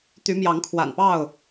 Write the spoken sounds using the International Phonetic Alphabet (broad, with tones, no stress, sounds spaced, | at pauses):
t̪ y˨˦ m j ɑ˨˦ ŋ kʰ w a̰˨˩ n p ɑ˥˨ ʊ̯